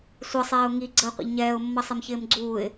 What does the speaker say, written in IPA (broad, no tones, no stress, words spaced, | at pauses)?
sʷʌsˤɛːʊ̯ ŋiɡ͡ǀəɪ̯qʷə̰ʎ ɲɛːʊ̯mːʌsˤɛmçɪːm ɡ͡ǀuːɪ̯